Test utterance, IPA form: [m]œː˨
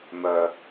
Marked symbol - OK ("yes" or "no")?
yes